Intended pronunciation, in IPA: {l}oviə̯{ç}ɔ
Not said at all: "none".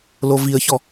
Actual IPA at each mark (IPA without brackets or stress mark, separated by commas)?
l, ç